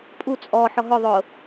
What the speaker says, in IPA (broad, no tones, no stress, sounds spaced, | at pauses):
pʼ u t͡sʼ ɔ ħ ɔ ɦ ʊ ðˤ ʊ